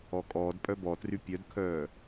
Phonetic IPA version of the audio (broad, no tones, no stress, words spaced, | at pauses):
ɔkʼɔːd pʼœbɔtry pʲœdkʰœː